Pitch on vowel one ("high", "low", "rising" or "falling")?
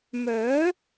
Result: rising